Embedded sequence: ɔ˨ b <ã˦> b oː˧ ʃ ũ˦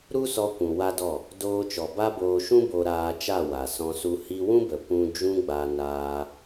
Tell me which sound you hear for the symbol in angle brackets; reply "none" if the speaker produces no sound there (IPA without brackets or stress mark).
a˦